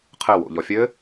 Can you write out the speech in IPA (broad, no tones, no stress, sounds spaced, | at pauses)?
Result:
qʰ ɘ w o̰ ʎ ɔ fʲ ɘ